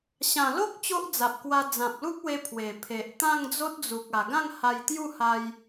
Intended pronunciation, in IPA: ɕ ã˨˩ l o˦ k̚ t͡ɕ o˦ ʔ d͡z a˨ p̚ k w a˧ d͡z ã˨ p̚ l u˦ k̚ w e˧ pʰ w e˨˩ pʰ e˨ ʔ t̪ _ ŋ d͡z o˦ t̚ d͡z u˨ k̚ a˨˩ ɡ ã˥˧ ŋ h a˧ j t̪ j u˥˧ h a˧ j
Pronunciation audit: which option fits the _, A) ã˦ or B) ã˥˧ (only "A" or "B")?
B